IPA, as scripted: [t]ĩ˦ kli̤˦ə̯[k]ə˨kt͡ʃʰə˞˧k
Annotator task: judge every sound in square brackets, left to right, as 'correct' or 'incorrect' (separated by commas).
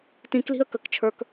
correct, correct